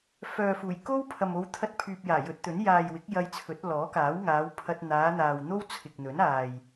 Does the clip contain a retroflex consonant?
no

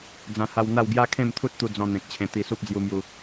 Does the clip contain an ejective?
no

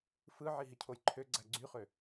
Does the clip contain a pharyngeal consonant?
yes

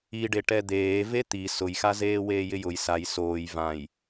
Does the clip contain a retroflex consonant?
yes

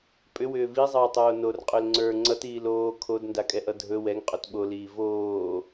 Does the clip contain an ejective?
yes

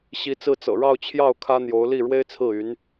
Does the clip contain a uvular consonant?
no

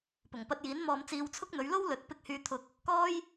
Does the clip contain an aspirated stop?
yes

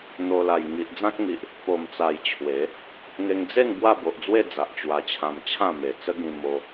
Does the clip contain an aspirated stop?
yes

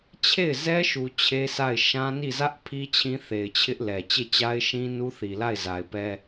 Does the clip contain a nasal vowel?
yes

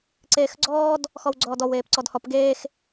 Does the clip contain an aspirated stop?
no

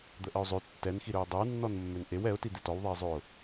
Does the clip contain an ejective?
no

